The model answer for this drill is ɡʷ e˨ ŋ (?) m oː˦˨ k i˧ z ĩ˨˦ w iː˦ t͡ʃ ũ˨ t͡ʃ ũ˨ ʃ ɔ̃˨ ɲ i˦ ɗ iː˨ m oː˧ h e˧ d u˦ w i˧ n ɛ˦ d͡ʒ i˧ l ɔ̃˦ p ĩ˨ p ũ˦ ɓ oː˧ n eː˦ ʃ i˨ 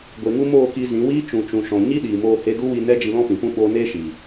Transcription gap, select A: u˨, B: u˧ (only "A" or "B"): B